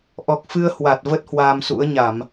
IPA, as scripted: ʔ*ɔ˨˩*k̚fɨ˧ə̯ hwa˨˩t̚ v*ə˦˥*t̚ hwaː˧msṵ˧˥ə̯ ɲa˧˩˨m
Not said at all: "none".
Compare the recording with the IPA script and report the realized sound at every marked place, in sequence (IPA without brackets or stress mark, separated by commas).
ɔ˨˩, ə˦˥